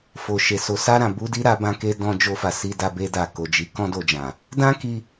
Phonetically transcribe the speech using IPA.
fo˨ʃe˨so˨˦ sa˧ɾã˨bu˧di˧ ɾa˦bã˦ke˦ dɔ̃˧d͡ʒo˧fa˨ si˧da˧be˧da˨ ko˨d͡ʒi˨˦kɔ̃˦ do˧d͡ʒã˨ | dã˦ki˧

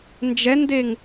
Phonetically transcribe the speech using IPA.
nd͡ʒɛndeŋ

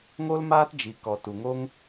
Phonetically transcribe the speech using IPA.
ŋo˦lmaː˦td͡ʒi˨kɔ˨ tu˨ŋo˦ŋ

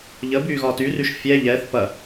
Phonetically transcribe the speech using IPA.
ʎə byːɣɒːtyryʃ fʲɛː ʎɛːθ pɐ

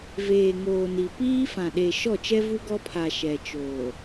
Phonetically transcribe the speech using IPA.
veː˨ŋoː˨ni˨ piː˦fã˨ɗe˨ ʃɔ˦˨t͡ʃɛ˦ vu˦ɡɔ˦pʰa˨ ʃɛ˨t͡ʃoː˨

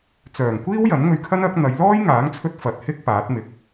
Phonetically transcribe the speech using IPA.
t͡sœː˨˩ŋkʷiː˥w jɐ˨˥nŋɵ˧ɥkʰɐ˥nɐ˨˥k̚ n̪ɐ˨˧jlɔː˥j ŋaː˨˥ŋt͡sʰɵ˧t̚ fɐ˨t̚hɪ˥k̚ paː˨˥t̚mɪ˨k̚

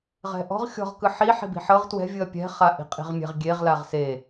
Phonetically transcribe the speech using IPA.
ʁɛ̤ʔɔ̤ʁ xʲɔ̤ʁkɯ ħi ħi̤bi̤ħɤʁ twɛ̤vʲɯɐ̯ pʲɛ̤ χaʔi̤qʼi̤ʁmʲɛ̤ʁ ɡʲeʁ laʁse

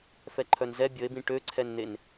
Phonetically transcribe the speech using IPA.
fɛǃʰœnzɛ bʲəe̯bĩ ʈøǀʰɛnn̪en

